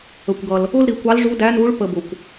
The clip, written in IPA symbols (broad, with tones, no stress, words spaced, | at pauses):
ə˩kʷɡʌ˩l | ʊ˥lɾi˩˧kʷ ɑ˧˥lʐu˧˥dæ˧˥nu˧˥ɭ pə˧ bʊ˩kʷ